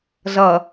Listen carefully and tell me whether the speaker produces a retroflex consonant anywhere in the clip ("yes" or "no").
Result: no